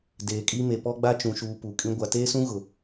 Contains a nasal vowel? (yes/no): yes